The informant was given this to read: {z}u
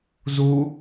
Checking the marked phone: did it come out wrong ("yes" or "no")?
no